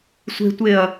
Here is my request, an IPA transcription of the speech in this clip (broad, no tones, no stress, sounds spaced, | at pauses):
sʷ e̤ tʷ e ɐ̯